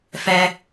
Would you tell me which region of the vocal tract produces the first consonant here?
lips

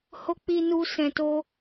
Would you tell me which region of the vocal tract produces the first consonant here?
throat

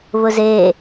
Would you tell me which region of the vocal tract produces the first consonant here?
lips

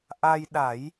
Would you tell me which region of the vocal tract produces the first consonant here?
throat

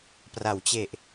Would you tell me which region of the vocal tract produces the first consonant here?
lips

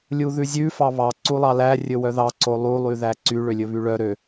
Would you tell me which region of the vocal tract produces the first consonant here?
tongue tip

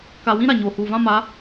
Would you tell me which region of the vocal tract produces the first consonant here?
velum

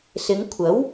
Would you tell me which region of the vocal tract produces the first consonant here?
tongue tip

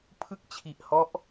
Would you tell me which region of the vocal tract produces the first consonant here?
lips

